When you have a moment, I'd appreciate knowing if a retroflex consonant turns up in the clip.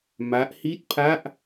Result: no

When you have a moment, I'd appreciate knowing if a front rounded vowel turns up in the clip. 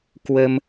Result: no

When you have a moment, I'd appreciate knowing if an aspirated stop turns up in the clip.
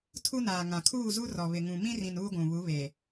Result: yes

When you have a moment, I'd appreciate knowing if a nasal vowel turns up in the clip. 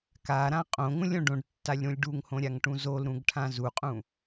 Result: yes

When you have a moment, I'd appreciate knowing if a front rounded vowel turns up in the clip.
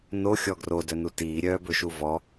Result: yes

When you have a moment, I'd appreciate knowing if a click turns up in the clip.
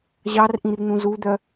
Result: no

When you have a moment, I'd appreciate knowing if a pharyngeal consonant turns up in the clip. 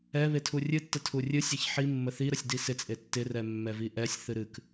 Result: yes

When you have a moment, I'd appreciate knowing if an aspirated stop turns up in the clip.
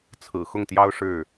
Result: yes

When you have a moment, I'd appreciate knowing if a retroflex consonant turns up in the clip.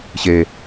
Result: no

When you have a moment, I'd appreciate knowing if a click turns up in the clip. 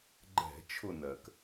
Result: yes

